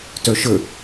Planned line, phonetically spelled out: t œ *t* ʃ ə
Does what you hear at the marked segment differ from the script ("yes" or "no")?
yes